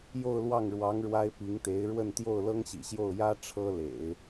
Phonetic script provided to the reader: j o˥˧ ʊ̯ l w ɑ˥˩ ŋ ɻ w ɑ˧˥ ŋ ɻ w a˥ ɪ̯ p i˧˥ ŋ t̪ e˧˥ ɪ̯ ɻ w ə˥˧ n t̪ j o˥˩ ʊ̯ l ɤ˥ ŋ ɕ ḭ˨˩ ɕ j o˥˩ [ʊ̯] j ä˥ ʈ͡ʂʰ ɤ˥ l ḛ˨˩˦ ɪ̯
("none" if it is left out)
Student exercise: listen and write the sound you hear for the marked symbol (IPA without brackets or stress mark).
ʊ̯